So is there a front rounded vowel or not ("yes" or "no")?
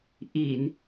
no